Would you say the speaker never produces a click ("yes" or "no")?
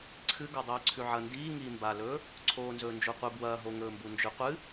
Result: no